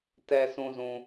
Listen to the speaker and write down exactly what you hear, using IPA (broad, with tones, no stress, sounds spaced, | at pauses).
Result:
t ɛ˨ s ũ˨ z ũ˨